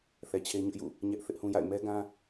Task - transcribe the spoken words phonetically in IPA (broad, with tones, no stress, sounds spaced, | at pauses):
θ ɛ˨ t͡ɕʰ e˦ ɲ ʊ˦ ʔ j ṵ˦˨ | ɲ ɛ˦ ʔ θ ɪ˦ ʔ h ũ˦ j a̰˦˨ ɪ̯ m ɛ˦ ɡ ã˦